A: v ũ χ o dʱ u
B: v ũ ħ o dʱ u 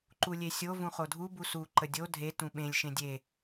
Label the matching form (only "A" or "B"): A